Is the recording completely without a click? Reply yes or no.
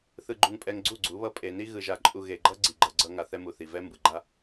no